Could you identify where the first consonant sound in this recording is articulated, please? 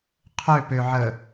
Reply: uvular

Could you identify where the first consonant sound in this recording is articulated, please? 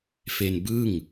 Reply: labial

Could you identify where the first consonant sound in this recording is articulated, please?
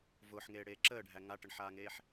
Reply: labial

